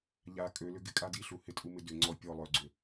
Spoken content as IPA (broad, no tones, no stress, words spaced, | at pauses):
ʎa kʼølʏ ɡɪkʼa diɬu hɪtʼumɪ dʏ ŋ͡ǀɔ pʲɔ lˠœɡ͡ǀʏ